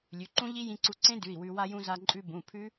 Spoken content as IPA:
lʲʉ˩˧˩ǃũ˦˥ʎi˦˥ jĩ˧ǀu˧ǀẽ˦˥ dʉ˩˧˩i̯ wʉ˧ wa˧jũ˧ za˧ǃʼʉ˧ bũ˩˧˩ pʰʉ˦˥

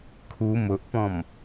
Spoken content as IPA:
kʰu mʊʔpɔ̃m

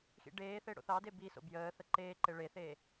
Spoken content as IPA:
xḭɖeːθe ɽo̰θɑde biso̰ bjəːθə ǃeːǃe ɭeθeː

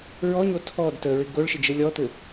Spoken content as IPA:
ɹɔɲo tʰɔd təɹɪ ɡoɭʃɪd͡ʒɘ lʲɔt̪ɘ

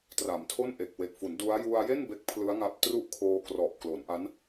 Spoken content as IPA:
tra˩˦mtʰo˥˩nʔe˨˩k̚ we˨˩k̚fu˩˦ndu˦˥a̯ ju˧a̯je˥˩n be˦˥k̚pʰlɯ˦˥a̯ŋa˦˥p̚tru˥˩ʔ kʰoː˧krɔ˨˩ʔklo˩˦nʔa˦˥n

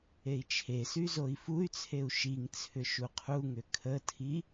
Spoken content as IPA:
ei̯t͡ʃʰesy zoi̯fuy̯t͡sʰeu̯ ʃiŋ t͡sʰʏʃuqʰuŋʏ kʰətʰi

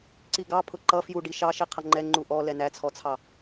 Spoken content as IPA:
ǀiɡɑpʰʊ ǃʌ fjuɖi ʃɑ ʃiqʰʌŋ͡ǃɛ ŋ͡ǃuʔɔ lɛnæt͡sʰɔt͡sʰɑ

